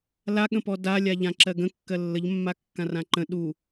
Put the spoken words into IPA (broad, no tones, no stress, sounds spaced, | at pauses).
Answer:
l a ɠ ə̃ p ɔ d a lʲ a ʎ ã ǁ ɜ ɡ ə̃ kː ɜ lː ə ʎ mː a kː ã r ã ǃ ə̃ ɗ u